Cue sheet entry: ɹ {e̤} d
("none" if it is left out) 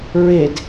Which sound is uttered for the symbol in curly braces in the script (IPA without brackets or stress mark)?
e